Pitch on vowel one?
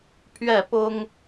falling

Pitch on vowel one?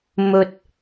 low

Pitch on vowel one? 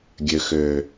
low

